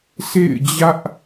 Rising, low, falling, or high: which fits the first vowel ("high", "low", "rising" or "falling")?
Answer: falling